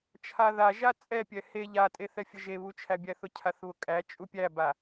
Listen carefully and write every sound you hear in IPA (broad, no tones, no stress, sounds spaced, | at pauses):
t͡ʃʰ a ð a ʒ a t͡sʼ ɛ pʲ ɛ h e ʎ a tʼ e θ ɛ fʲ ə ʒ e β u t͡ʃʰ æ bʲ æ θ ʊ cʰ a θ β ʊ kʼ æ t͡ʃʼ u pʲ æ b a